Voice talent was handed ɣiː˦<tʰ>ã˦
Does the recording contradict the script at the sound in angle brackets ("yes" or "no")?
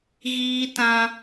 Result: yes